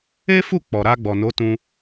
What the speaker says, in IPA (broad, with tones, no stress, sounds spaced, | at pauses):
e˦ f u˦˨ k͡p ɔ˨ ɾ a˧ ɡ͡b ɔ˨ n o˨˦ t ũ˧